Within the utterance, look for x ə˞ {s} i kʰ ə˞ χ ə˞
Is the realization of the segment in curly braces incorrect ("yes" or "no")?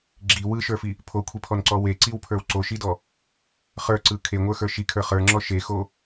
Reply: yes